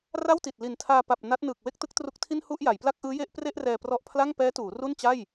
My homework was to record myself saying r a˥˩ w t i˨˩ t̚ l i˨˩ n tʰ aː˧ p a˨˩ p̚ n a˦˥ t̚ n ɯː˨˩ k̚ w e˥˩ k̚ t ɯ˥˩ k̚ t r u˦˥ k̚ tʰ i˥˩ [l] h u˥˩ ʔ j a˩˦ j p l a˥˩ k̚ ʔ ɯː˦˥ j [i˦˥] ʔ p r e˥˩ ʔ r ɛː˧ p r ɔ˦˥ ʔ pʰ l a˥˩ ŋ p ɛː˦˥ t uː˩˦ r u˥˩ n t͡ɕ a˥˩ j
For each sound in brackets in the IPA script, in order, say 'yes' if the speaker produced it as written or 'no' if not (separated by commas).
no, no